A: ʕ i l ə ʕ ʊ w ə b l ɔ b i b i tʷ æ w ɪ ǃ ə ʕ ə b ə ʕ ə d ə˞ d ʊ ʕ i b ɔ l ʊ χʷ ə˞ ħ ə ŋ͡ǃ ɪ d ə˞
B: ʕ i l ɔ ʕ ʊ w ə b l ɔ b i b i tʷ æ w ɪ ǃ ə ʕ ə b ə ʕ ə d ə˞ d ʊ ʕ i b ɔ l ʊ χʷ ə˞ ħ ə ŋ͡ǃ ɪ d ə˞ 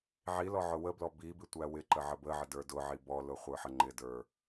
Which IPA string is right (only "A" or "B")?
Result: B